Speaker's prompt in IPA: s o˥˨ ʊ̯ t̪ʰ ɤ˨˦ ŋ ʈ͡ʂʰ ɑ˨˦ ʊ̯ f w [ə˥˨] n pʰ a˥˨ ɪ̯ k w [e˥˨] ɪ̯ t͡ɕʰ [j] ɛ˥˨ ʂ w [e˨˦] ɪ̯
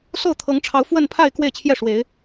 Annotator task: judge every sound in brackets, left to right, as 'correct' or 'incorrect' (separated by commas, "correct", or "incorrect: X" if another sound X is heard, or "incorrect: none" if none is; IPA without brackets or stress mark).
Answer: correct, correct, correct, correct